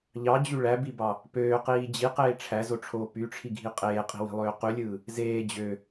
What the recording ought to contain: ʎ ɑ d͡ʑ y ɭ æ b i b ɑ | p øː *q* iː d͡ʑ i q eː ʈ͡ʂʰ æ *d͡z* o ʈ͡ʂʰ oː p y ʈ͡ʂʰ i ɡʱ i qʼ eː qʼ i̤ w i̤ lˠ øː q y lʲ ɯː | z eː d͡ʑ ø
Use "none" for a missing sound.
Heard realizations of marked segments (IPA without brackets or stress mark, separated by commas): q, z